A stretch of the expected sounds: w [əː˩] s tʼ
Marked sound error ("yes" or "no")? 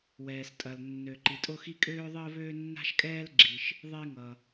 yes